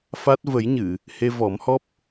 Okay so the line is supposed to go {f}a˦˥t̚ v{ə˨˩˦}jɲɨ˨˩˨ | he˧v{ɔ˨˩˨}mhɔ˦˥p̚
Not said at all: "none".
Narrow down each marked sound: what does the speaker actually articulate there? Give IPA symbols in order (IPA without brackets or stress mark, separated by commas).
f, ə˨˩˦, ɔ˨˩˦